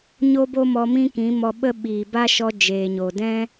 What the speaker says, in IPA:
ɲo˦bo˦mɔ˧ mĩ˦kĩ˨˦mɔ˧ɓə˦ ɓiː˨ba˦ ʃɔ˧ d͡ʒeː˨ɲo˨dɛ̃˦

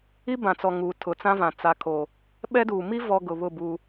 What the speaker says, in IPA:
i˦bã˨t͡sɔ˨ ŋuː˨tʰʊ˨t͡sã˦vã˨ t͡sa˨kʰo˨ | ɓɛ˦duː˨ mi˦vɔ˨ ɡʊ˨βʊ˦˨ bu˦

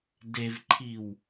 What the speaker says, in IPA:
devǃʰiw

